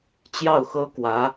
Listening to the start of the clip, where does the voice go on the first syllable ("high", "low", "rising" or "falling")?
falling